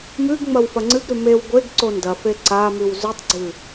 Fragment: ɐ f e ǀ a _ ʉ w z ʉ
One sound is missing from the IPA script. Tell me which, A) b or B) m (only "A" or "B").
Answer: B